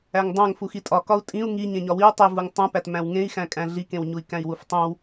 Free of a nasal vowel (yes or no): no